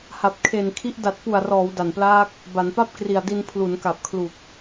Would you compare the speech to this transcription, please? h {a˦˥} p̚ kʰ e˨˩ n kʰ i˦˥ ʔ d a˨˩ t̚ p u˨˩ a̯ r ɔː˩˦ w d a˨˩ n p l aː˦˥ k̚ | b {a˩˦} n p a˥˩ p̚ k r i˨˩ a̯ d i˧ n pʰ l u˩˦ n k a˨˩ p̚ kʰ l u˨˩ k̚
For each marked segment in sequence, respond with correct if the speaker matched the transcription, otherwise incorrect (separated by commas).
incorrect, correct